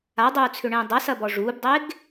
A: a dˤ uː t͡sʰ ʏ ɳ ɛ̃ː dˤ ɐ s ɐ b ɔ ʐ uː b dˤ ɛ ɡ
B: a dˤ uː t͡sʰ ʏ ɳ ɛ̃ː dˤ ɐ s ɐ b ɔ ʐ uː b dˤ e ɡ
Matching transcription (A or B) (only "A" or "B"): B